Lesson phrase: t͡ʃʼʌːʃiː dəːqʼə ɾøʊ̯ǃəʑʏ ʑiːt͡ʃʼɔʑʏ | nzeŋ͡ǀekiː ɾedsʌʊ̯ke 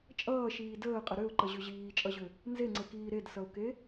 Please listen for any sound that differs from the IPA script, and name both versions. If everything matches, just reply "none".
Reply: ɔ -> ʌ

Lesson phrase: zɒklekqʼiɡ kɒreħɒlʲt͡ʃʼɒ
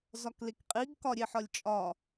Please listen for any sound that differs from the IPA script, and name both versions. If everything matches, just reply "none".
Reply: r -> ɾʲ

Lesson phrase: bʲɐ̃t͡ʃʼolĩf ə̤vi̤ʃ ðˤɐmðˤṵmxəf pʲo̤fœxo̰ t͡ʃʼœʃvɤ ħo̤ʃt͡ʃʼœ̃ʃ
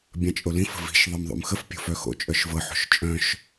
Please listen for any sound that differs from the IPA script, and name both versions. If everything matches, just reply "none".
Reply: none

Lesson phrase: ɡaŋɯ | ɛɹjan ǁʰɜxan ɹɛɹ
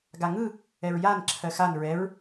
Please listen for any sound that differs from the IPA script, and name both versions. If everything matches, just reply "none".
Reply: none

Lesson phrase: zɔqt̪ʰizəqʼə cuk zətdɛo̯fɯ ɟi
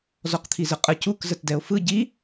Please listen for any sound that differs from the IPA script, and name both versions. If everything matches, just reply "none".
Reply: none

